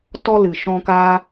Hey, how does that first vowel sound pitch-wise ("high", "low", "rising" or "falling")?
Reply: high